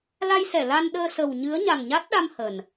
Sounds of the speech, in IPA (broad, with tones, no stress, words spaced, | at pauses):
la˧jsɛ˧˩ la˧nɗəː˧sə˨˩w ɲɨ˨˦ə̯ɲa˨˩ŋɲa˦˥t̚ɗa˧m hə˨˩n